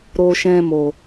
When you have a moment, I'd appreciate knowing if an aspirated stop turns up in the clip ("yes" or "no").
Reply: no